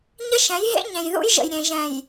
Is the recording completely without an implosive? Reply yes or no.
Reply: yes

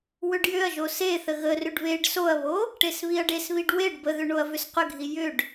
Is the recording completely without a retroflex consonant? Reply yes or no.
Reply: no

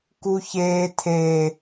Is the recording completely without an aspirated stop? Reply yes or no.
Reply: no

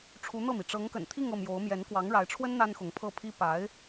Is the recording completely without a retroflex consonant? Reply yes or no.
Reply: no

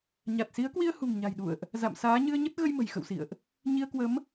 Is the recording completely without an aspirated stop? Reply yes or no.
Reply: yes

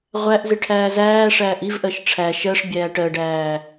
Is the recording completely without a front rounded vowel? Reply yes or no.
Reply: yes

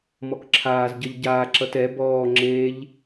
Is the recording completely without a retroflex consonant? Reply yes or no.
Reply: yes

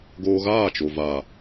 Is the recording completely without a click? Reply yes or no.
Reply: yes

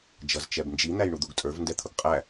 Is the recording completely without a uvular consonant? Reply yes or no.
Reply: no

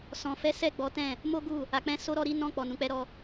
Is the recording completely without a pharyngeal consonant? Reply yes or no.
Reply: yes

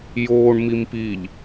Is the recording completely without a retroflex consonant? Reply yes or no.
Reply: no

